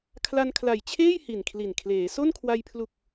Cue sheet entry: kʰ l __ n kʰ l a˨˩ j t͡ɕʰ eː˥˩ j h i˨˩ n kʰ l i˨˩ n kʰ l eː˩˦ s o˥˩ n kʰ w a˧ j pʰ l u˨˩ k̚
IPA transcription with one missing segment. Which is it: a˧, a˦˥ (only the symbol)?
a˧